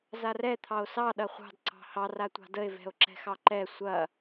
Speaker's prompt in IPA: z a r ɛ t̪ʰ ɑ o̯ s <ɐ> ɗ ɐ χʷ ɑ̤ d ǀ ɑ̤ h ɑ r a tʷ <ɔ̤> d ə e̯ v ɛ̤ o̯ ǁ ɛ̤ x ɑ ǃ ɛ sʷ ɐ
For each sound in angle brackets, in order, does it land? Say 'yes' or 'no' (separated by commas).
no, no